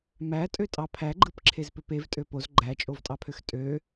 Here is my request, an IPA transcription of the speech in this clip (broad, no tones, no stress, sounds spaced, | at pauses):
m æ tʼ ø tʼ ɑ pʰ æ ɡ͡ǃ ɯ p ǁʰ e z p ø p e v tʼ ø p o z ɡ͡ǃ æ t͡ʃʼ o v tʼ ɑ pʰ ø x tʼ ø